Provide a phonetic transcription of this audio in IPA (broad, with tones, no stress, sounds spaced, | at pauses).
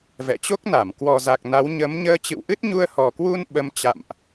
v ɛ̰˧˨ t͡ɕ o˦˥ k̚ n a˧˩ m k w ɔ˨˩ z a˨˩ k̚ n a˨˦ w ɲ ə˨˦ m ɲ əː˧ t͡ɕ ɨ̰˧˨ w ʔ ɨ˦˥ t̚ ɲ u˧ ə̯ h ɔ˨˩ k w u˧ n ɓ ə˧ m t͡ɕ a̰˧˨ m ʔ